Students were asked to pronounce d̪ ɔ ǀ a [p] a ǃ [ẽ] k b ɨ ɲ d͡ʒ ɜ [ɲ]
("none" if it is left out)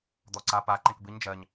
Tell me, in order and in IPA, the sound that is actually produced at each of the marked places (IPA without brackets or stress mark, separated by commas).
p, ẽ, ɲ